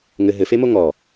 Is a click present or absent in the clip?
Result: absent